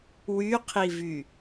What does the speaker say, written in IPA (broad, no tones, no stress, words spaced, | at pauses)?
wyqʰivy